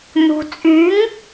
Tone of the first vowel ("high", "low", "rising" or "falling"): low